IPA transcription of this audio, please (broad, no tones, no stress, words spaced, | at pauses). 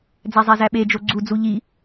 d͡zæzˤæzæɓe d͡ʒoɡ͡ǀud͡zu ʎi